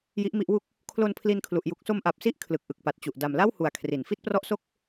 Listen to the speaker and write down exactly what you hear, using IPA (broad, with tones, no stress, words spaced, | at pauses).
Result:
ji˦˥ʔmi˦˥ʔwu˥˩k̚ | kʰlo˧npʰli˧nkʰlu˨˩ʔ ju˨˩k̚so˧mʔa˨˩p̚si˦˥ʔ kʰlɯ˨˩k̚ʔɯ˨˩k̚pa˨˩t̚t͡ɕu˨˩ʔ da˨˩mla˥˩whu˨˩a̯ kʰri˩˦n fi˥˩t̚prɔ˥˩ʔso˥˩k̚